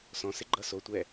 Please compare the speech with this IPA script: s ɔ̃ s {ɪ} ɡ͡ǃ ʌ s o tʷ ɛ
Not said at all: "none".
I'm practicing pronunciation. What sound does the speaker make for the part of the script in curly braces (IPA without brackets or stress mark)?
ɪ